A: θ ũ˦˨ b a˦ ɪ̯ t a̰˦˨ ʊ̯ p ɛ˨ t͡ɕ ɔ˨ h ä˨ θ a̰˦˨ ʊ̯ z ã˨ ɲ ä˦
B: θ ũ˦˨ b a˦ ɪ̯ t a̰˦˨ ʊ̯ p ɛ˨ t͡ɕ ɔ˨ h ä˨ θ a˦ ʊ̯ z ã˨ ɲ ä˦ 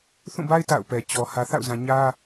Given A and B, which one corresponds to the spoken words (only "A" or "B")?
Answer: A